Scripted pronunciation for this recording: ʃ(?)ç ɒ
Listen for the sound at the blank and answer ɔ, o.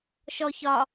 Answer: ɔ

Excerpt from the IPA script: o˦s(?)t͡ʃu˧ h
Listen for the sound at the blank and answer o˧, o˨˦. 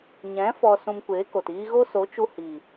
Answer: o˨˦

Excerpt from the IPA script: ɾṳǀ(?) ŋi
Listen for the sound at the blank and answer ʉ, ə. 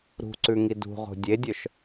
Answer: ʉ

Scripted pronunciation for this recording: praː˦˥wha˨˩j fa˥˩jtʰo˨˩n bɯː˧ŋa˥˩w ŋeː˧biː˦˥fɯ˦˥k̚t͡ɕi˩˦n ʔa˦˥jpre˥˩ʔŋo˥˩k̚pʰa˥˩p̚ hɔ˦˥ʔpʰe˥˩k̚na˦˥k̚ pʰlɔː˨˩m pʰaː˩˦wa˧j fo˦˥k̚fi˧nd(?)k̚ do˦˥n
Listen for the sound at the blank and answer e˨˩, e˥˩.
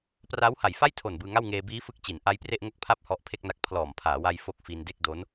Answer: e˥˩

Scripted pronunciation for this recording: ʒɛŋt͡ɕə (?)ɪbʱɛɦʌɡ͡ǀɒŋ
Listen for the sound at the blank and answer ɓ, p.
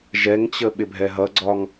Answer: ɓ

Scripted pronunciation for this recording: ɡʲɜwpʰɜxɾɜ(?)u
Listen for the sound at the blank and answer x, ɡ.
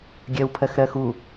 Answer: x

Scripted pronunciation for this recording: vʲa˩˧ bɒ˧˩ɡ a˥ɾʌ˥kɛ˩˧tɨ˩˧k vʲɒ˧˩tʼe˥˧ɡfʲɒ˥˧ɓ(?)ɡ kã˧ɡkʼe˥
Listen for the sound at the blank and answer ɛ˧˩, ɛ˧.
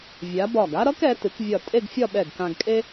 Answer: ɛ˧˩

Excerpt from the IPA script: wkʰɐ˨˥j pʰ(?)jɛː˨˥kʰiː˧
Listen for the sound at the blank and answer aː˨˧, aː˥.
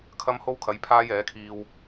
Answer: aː˥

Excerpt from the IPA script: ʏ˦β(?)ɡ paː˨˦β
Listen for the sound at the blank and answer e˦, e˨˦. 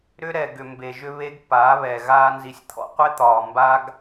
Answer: e˦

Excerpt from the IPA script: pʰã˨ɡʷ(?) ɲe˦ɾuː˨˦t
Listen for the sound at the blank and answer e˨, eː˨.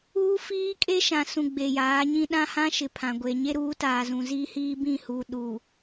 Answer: e˨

